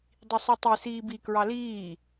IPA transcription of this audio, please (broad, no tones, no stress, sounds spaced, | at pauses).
dˤ i sˤ i tˤ i s iː b i k ɹ ɑ l iː